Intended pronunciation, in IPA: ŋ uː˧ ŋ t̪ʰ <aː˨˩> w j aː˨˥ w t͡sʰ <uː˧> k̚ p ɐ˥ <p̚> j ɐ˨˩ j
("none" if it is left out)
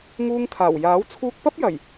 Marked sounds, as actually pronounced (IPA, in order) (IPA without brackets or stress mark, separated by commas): aː˨˩, uː˧, p̚